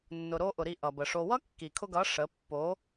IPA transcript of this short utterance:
nː ʊ˨ ɾ o˧ ʔ ʊ˨ ɾ i˦˨ ʔ ʌ˨ b ə˨ ʂ o˧ w ʌ˦ kː i˨ kʰ ʊ˧ ɡ ʌ˨˦ ʂ ə˨˦ pː o˨˦

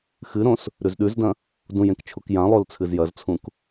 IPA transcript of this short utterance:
x ɨ ɾ õ s | ɾ ʉ z ɗ ʉ z d ɐ̃ | d ũ j ẽ k t͡ʃʰ u k j ã lˠ o l t͡sʰ ɨ z j ɐ z t͡sʰ ũ k

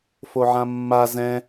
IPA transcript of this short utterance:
f o ʕ ã mː a z ɛ̃

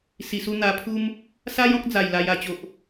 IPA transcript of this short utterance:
s i˨˩ s u˧ n̪ a˧ pʰ u˦ m | s a˦ j ɔ̃˦ k̚ d͡z a˨˩ j l a˧ j a˧ t͡ɕ o˨ ʔ

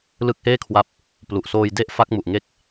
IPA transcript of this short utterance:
l ɯ˦˥ k̚ h eː˥˩ kʰ w a˦˥ p̚ | p l u˨˩ ʔ s oː˧ j d e˥˩ ʔ f a˦˥ k̚ m u˨˩ ʔ ŋ e˦˥ k̚

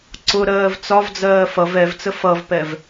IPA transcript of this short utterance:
ǀ ʊ ɾ ɜː v t͡s ɒ v d͡z ɜː f ʌ v ɛ v t͡s ə f ʌ v p ɛ v

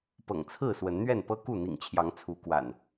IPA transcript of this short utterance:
p ɤ̰˨˩ ŋ t͡sʰ ɹ̩˥˨ s w ə˨˦ n n̪ ɥ ɛ˥˨ n p ɤ˦ k u˥˨ n̪ ḭ˨˩ ŋ t͡ɕʰ j ɑ˨˦ ŋ t͡sʰ u˨˦ k w a̰˨˩ n

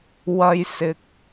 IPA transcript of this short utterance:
w ɐ˧ j s ɪ˨ k̚

